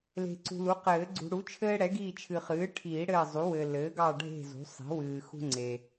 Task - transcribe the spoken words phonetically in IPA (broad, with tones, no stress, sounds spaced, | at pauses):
l e̤˨ ǀ ṳ˨ l u˩˥ q ɘː˨˩˦ ɡ͡ǀ ṳ˨ ɽ u˩˥ t͡ʃʰ ɘː˦ ɽ ɛ˩˥ ɡ iː˦˨ t͡ʃʰ ɨ˨ χ ɨː˩˥ ʈʰ iː˨˩˦ ɽ ɘː˦˨ zˤ u˩˥ w ɘː˨ l ɘː˩˥ ɡ ɑ˦˨ ɖʱ e̤˦˨ z ṳ˩˥ sˤ i̤˩˥ w ɨː˨ x ṳ˦ ŋ͡ǀ e˨